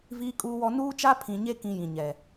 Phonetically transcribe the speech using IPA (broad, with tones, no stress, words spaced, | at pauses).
viː˦kʼuː˦wɔ˦ nuː˦t͡ʃa˦pʰĩ˨ɲe˦ kĩ˦jĩ˨ɲɛ˨